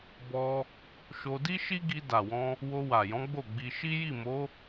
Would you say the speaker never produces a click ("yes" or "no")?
yes